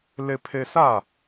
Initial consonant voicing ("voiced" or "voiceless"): voiced